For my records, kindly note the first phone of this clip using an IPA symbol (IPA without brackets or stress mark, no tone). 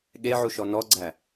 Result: ɠ